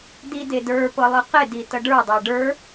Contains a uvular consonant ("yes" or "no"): yes